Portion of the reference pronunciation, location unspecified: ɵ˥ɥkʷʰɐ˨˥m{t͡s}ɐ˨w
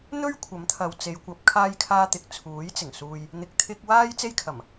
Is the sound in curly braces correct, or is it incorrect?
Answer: incorrect